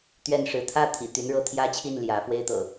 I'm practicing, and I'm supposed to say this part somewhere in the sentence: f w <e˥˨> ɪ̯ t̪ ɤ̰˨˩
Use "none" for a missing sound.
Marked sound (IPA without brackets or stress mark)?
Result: e˦